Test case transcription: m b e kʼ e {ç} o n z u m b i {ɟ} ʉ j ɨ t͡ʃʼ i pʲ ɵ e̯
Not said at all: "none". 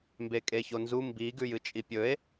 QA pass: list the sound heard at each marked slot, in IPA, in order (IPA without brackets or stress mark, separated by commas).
ç, ɡ